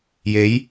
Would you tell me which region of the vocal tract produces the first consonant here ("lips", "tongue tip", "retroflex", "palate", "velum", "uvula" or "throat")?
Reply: palate